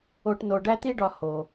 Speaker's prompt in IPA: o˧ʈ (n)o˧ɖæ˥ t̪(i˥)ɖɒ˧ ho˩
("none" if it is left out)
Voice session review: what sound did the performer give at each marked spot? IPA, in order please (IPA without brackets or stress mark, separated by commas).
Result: n, i˥